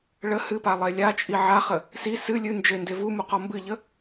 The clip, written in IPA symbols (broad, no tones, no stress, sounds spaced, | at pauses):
ɭ ə h ɨ p a lˠ e lʲ a t͡ʃʼ i ʕ a χ ə | s i s ɨ lʲ ɨ n d͡ʒ e n d e v u m u q ɔ m b ɨ ʎ ə